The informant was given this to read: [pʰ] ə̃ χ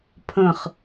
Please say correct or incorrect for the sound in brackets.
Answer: correct